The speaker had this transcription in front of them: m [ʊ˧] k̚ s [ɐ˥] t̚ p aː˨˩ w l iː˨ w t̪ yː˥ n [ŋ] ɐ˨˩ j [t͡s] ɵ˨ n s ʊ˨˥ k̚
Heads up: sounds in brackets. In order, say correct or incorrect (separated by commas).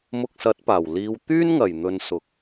correct, incorrect, correct, incorrect